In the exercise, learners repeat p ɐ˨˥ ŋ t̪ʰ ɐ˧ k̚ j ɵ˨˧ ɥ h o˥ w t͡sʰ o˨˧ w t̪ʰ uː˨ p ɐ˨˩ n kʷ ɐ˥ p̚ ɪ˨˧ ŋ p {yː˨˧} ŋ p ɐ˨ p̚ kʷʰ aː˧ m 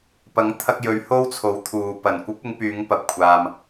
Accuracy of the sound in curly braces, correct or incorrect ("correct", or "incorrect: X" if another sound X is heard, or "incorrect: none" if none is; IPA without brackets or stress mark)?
correct